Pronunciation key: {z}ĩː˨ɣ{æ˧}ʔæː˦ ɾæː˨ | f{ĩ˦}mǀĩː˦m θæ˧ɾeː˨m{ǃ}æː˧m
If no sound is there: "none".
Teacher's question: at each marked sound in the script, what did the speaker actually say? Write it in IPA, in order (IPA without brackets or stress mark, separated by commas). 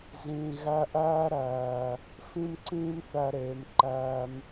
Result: z, æ˧, ĩ˦, ǃ